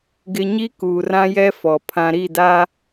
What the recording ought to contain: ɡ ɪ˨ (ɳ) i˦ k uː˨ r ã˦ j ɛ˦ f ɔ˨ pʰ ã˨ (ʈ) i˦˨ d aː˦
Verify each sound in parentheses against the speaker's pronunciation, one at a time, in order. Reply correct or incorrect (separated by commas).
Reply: incorrect, incorrect